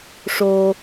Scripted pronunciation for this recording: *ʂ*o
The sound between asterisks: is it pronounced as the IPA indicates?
yes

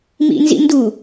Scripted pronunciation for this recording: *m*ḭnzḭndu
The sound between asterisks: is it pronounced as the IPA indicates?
yes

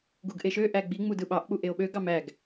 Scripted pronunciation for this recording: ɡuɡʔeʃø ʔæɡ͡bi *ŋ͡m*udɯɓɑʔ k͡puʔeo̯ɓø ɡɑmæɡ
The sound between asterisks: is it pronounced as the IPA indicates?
yes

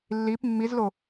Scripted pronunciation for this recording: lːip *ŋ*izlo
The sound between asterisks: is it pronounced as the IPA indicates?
no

